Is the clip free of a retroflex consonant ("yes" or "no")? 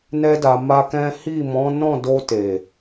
yes